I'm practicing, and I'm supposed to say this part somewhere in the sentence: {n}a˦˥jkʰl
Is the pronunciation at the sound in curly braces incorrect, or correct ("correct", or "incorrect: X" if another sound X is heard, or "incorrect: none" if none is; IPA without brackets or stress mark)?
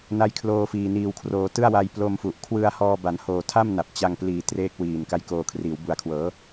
correct